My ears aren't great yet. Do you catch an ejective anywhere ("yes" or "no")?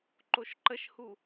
no